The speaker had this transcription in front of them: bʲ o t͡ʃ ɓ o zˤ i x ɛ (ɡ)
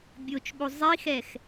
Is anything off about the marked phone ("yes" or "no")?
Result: yes